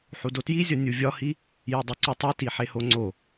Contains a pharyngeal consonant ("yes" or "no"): yes